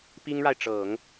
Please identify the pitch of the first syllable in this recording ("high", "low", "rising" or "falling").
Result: high